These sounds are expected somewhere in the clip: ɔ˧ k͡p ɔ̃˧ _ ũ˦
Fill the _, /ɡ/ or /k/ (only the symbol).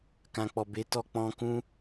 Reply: k